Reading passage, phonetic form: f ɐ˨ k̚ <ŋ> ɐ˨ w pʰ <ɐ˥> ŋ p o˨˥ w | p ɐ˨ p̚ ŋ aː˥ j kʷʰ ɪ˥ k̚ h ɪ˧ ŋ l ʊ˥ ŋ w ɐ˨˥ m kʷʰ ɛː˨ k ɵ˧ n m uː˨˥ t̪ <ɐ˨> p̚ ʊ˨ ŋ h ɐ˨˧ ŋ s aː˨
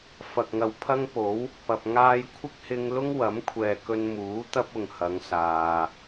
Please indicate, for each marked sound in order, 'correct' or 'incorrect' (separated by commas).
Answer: correct, correct, incorrect